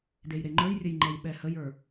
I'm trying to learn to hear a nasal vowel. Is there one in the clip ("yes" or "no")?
no